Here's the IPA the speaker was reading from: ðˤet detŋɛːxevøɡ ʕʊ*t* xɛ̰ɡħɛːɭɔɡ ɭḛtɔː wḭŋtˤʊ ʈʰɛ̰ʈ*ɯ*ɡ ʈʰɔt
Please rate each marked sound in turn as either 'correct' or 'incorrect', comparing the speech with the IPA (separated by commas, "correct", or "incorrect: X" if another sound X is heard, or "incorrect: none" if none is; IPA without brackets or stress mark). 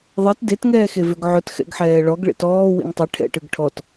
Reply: correct, correct